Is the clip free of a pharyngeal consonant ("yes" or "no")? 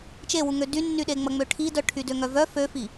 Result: yes